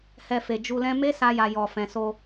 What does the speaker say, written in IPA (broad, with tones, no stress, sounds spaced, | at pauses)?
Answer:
h ɛ˧ f e˨ d͡ʒ u˧ l ɛ̃˦ m e˦ s a˧ j a˨ j ɔ˨ f ɛ̃˨ s o˧